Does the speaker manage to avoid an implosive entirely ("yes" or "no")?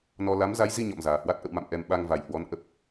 no